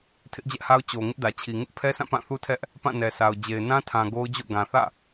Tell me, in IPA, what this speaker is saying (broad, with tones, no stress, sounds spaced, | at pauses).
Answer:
tʰ ɪ˦ ʔ d͡ʑ ɛ˦ ʔ h a˦ ʊ̯ t͡ɕ o˨ ŋ ɪ˦ ʔ d ä˨ t͡ɕʰ i˨ ŋ ɪ˦ ʔ pʰ ɛ˦ sʰ ã˦˨ p ã˦˨ θ u˦ tʰ ɛ˦ ʔ | p ã˦˨ n ɛ˨ sʰ a˨ ʊ̯ d͡ʑ e˨ ɪ̯ n ã˦ tʰ ã˨ ɡ o˦ ʊ̯ d͡ʑ o̰˦˨ ɡ ã˨ θ ä̰˦˨